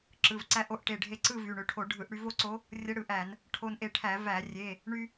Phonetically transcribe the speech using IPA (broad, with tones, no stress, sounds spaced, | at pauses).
ǁ ɯ˩˧˩ v ǀ æ˧˥ ʔ o˧˩ ʔ ʈ e˧˩ ɖʱ e˧ ǀ ɯ˥˧ v y˩˧˩ ɳ ø˧ ʈʰ o˧˩˧ ɖʱ ɯ˧˩˧ ʔ ɽ y˧ v o˥˧ ǀ o˧˥ | rʲ ə˧˥ ɽ ɯ˧˩˧ ʔ æ˧˩˧ n | ʈʰ o˧ n ʔ e˧ ʈʰ æ˧˩˧ v æ˧˩˧ rʲ e˩˧˩ | ɳ y˧